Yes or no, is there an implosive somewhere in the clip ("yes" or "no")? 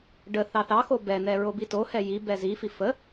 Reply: no